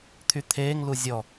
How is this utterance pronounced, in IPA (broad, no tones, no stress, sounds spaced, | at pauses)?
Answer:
t̪ʰ y t̪ʰ eː ŋ l u zʲ ɔ